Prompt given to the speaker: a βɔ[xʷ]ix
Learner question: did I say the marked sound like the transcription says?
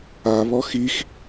no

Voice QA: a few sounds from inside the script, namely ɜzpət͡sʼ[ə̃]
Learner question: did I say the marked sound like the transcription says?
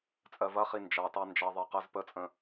yes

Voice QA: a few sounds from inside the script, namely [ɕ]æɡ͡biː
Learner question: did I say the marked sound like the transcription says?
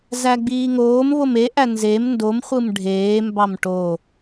no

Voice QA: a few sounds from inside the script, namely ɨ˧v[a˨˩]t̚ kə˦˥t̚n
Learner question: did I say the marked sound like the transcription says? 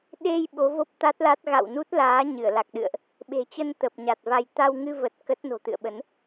no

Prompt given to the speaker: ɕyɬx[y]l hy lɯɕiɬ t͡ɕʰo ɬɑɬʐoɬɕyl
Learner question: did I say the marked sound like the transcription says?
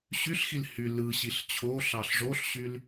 no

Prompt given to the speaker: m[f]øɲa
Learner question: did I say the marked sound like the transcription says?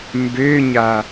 no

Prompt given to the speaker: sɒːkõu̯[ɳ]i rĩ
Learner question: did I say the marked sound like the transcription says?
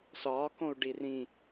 no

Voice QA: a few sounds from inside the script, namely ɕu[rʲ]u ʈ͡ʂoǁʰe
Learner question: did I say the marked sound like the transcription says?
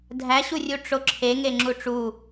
yes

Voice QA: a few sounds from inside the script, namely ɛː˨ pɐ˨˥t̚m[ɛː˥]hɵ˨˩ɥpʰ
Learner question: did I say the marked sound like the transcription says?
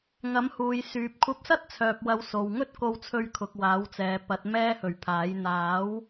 yes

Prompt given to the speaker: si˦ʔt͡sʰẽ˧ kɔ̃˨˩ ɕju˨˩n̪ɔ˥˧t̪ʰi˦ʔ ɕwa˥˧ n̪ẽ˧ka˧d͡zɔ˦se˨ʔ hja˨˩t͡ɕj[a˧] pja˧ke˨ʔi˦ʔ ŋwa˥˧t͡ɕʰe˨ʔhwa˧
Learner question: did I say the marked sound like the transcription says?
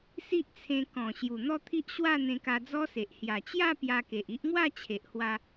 no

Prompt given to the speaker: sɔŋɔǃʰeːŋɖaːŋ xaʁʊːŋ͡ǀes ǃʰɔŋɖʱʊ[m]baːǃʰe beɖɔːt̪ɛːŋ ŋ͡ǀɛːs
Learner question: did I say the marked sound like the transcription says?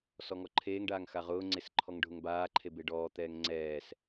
no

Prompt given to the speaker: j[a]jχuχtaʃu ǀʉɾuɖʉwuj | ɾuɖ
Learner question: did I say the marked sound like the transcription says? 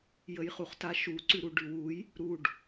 no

